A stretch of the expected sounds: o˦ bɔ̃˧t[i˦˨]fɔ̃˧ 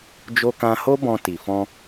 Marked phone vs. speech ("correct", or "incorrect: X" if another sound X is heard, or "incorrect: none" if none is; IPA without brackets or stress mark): incorrect: i˨